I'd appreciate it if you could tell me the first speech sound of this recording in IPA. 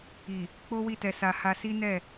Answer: i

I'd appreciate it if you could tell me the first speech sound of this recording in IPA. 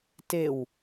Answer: t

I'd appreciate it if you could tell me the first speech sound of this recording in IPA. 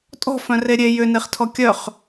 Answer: tʼ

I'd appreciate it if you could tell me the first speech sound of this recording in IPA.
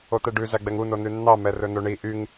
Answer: o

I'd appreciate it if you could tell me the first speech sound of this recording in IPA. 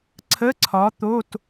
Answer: ǀʰ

